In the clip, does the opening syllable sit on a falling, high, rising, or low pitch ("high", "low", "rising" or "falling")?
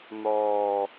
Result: low